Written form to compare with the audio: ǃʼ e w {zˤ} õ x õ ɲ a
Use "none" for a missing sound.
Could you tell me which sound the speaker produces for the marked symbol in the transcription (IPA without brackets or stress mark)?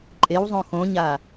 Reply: zˤ